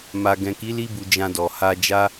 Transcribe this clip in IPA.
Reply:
m a˨ ɡ ɛ̃˨ k i˨˦ l i˦ b u˧ d͡ʒ ã˧ d ɔ˨ h a˧ d͡ʒ a˦

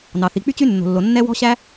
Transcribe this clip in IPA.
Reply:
n ɑ˩ θ i˩ k͡p y˥ t͡ɕ y˥ nː o̤˩ lː o˩ nː ɛ˥ w ɔ̤˥ ɕ æ˥

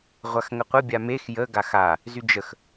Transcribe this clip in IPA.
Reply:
ʁʷ a x ŋ ə qʷ ə bʲ a m e x j ə ɡ a x a | z y d͡ʒ ə x

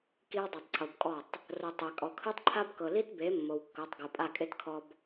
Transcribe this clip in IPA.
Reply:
k i˦ w dˤ ɤ˨ tˤ ǀʰ o˨ b kʼ ɔ˦˨ tˤ | r o˨ tˤ ɛ˨ kʼ ɔ˨ kʰ ɯ˦ tˤ ǃʰ a˦ b k ɤ˨ l i˦ t b e˨˦ mː o˨ w kː ɤ˨˦ tˤ ɡ o˨ pʼ a˦˨ kʼ e˦ t kʰ ɔ˦ b

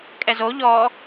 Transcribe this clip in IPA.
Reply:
kʼ ɛ z o ʎ ɔ

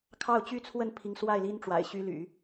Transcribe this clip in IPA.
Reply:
kʰ ɑ˥˩ ʊ̯ t͡ɕ y˥ t͡sʰ w ə˥˩ n pʰ i˧˥ ŋ s w a˥˩ ɪ̯ l i˥ n ʈ͡ʂ w a̰˨˩ ɪ̯ ɕ y˥ l y̰˨˩˦

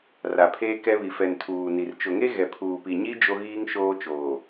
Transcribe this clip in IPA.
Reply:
r a˨ pʰ eː˦ k ɛ˦ β i˨ f ɛ˨ n tʰ uː˨ n i˨ r t͡ʃ ʊ˨ ŋ e˦ ɣ ɛ˨ pʰ uː˨ p i˨ ɲ i˦ d͡ʒ o˦ ɣ iː˦ ŋ ʃ oː˦ t͡ʃ oː˨

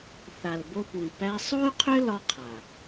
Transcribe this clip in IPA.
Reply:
θ a˨ l b o˧ p u˨ i̯ p æ˧ sˤ o˦ y̯ qʰ ʏ˦ l ɒ˦ qʰ a˨

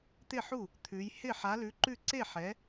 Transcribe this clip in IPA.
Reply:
t̪ ɪ˥˩ ħ u˥˩ | t̪ʰ ʉ˨˥ j h ɪ˥˩ ħ a˨˥ l ʉ˨˥ ǃ ʉ˥˩ ǀ e˥˩ ħ ɛ˨˥

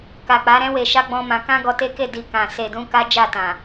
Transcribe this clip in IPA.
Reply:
k a˨ k͡p a˨˦ ɾ ɛ̃˦ w e˧ ʃ a˦ ɡ͡b ɔ̃˦ m ã˧ k ã˦ ɡ ɔ˧ t e˦ k e˦˨ d i˧ k ã˨ s e˨ d ũ˧ k a˦ d͡ʒ a˦˨ t ã˨

